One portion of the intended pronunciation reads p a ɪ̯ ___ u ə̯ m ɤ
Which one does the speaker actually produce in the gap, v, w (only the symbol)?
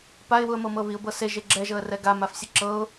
w